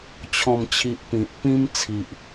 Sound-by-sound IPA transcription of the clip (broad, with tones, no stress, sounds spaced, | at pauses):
t͡ɕʰ ɔ̃˥˧ m t͡ɕʰ i˦ ʔ p ĩ˨ t̚ p ĩ˦ m t͡sʰ i˨ ʔ